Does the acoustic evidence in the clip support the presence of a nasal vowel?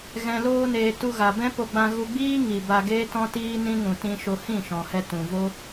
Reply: yes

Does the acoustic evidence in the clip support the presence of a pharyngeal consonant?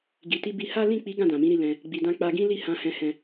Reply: no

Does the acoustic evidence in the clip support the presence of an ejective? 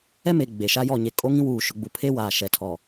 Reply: yes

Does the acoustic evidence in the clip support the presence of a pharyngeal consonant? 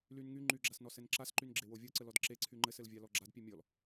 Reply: no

